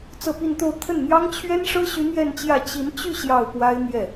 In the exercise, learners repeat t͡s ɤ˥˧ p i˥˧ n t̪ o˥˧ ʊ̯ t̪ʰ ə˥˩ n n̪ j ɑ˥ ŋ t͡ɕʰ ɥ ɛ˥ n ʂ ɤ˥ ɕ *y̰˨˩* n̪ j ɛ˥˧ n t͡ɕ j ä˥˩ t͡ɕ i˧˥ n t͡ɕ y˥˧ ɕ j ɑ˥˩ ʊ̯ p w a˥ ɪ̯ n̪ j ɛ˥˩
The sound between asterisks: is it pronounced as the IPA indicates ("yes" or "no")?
no